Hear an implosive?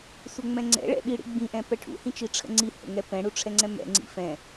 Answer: yes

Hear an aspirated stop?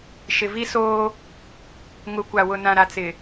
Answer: no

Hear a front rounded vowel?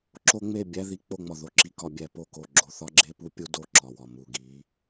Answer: no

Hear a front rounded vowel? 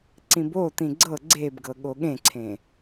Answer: no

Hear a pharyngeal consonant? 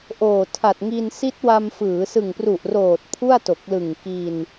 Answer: no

